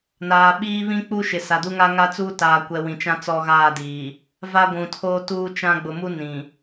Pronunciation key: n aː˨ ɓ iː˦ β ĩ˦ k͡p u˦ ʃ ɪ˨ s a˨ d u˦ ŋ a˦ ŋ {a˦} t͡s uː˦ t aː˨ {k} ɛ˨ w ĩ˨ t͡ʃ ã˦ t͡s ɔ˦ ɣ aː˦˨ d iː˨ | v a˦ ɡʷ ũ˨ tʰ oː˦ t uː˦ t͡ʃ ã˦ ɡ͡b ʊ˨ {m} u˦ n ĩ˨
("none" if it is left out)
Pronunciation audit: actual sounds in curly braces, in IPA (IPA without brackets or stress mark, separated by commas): a˦, kʷ, m